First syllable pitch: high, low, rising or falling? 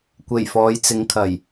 low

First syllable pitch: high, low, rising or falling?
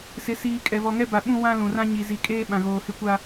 rising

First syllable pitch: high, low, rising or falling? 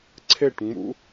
falling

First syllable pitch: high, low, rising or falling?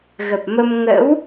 low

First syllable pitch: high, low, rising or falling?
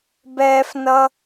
high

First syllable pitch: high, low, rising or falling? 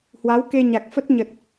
rising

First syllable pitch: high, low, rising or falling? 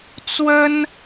high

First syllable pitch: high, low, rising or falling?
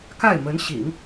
falling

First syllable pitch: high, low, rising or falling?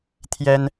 high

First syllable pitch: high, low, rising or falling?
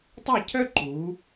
falling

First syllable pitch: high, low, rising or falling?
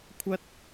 high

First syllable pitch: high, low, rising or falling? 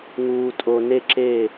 low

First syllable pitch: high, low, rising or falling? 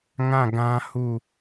falling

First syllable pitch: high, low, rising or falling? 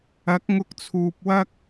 rising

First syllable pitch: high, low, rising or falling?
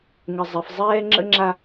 low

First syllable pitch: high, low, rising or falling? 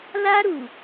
high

